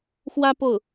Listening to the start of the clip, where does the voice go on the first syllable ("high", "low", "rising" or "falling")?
high